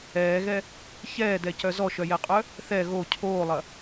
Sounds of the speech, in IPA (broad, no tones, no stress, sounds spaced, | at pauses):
ɛː ɣ ɛ | ç ɛː d ɛ c œ z ɔ ʃ œ j ɛ qʼ œ | θ ɛ ɣ o cʰ oː lˠ ɐ